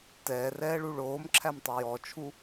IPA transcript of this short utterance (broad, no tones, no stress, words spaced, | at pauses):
tɛːrɛːɭu ɭoːmǁʰæmtˤo jɔt͡ʃʰu